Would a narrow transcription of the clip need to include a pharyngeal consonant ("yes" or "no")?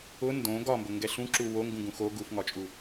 no